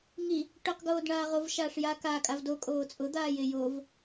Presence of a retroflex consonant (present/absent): present